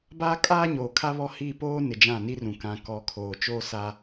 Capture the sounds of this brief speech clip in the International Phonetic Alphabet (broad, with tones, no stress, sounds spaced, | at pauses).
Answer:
b aː˦ kʼ aː˦ ɲ oː˨ kʰ a˦ β ɔ˦ h i˦˨ p oː˦ n ɪ˨ d͡ʒ ã˦˨ n i˦ r ũ˨ k ã˨ k ɔ˨ kʰ oː˨ t͡ʃ oː˦ s a˦